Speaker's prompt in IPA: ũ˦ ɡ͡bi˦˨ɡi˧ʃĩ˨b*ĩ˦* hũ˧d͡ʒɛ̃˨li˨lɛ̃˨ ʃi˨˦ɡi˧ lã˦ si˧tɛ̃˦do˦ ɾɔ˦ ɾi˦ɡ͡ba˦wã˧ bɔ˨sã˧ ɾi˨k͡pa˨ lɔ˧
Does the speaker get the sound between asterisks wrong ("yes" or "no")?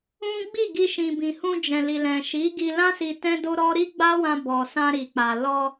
yes